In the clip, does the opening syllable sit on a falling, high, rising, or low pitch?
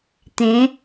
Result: rising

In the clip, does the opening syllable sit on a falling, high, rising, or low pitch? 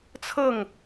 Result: falling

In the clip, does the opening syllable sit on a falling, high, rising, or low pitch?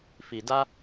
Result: low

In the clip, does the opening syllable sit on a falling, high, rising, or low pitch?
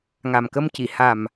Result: low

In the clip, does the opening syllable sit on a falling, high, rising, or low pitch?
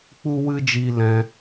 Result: high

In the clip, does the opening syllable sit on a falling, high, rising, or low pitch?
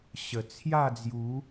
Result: low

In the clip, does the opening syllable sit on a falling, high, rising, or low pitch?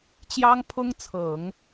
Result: high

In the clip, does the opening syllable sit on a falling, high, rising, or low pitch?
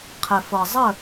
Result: low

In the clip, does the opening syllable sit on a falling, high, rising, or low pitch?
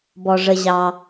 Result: low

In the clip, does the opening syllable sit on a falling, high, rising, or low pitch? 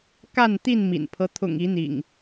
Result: falling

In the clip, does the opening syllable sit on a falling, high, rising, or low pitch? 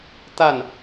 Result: falling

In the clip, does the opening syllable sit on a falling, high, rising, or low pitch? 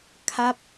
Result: falling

